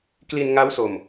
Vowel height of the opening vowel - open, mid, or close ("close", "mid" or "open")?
close